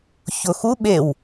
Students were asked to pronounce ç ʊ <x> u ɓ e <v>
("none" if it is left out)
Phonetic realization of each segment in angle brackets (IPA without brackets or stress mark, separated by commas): x, w